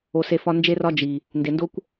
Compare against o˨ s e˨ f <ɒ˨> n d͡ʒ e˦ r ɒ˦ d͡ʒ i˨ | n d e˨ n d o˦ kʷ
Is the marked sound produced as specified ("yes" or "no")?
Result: no